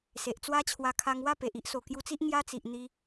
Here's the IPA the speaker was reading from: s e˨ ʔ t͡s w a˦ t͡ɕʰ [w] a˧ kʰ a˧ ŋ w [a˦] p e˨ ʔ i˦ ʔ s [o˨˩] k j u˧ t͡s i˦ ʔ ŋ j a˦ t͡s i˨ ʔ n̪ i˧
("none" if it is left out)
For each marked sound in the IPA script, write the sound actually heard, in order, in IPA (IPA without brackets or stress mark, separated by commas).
w, a˥˧, o˨˩